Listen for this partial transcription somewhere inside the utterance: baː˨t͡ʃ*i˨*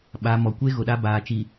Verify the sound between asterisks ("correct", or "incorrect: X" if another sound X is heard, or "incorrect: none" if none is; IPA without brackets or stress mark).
correct